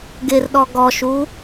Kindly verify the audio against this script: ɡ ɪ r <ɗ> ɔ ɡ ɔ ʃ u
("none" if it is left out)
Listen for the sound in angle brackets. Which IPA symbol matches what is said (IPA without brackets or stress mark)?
ɗ